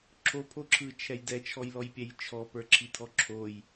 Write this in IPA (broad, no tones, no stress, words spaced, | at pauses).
ǁʰopʰoǁʰɯt͡ʃʰɛj dɛt͡ʃʰɔjlɔjpʲɛj t͡ʃʰɔpə˞ǁʰitʰɔ ǁʰoj